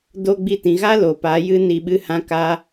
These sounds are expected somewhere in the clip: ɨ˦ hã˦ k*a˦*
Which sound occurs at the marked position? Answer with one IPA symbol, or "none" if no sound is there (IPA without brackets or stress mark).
a˦